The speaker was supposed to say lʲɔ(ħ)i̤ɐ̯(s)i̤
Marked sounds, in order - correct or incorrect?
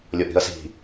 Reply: incorrect: ʔ, correct

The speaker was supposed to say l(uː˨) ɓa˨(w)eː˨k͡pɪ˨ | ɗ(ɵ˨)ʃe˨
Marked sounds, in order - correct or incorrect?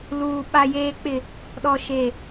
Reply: correct, incorrect: j, incorrect: ɔ˨

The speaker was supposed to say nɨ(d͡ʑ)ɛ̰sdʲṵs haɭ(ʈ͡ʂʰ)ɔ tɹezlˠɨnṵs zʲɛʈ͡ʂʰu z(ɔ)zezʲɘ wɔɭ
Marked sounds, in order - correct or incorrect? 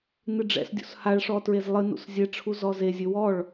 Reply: incorrect: ɖ͡ʐ, incorrect: ʂ, correct

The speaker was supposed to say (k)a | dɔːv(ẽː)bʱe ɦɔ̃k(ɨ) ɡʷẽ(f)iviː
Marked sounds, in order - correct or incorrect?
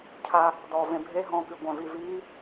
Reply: incorrect: cʰ, incorrect: ẽ, correct, incorrect: v

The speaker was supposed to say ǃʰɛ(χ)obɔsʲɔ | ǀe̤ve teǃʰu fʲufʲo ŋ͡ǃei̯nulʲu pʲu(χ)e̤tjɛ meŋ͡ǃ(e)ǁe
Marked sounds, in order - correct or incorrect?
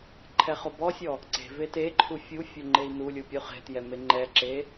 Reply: correct, correct, incorrect: ɛ

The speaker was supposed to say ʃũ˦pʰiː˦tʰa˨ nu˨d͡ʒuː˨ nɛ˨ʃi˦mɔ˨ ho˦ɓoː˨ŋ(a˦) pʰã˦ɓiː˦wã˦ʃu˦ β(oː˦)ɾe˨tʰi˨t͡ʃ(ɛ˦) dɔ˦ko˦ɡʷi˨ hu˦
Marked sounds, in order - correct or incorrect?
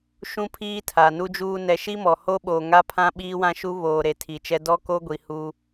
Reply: correct, incorrect: oː˨, correct

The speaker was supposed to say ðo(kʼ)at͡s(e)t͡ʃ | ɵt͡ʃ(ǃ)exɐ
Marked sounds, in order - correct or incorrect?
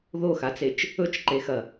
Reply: incorrect: x, correct, correct

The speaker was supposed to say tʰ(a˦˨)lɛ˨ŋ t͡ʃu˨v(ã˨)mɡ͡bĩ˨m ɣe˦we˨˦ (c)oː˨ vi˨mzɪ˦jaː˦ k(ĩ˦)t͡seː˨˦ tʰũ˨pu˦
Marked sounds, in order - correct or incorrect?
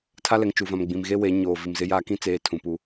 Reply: incorrect: a˦, correct, incorrect: ɲ, correct

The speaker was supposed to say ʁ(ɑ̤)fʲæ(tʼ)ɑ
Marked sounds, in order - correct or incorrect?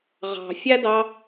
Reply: correct, incorrect: d

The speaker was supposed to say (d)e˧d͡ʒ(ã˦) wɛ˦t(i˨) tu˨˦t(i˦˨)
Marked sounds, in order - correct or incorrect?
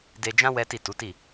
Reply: correct, correct, incorrect: i˦˨, correct

